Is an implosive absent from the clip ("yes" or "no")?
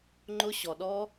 no